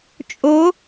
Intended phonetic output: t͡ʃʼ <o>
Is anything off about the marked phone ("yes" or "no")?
no